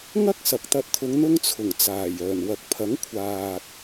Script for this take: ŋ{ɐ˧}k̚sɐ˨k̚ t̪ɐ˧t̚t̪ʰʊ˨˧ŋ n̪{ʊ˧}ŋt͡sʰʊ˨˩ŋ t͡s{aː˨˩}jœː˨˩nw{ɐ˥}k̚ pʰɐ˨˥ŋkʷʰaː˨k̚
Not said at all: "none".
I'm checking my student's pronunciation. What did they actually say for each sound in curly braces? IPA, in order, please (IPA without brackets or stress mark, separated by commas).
ɐ˥, ʊ˧, aː˨˩, ɐ˨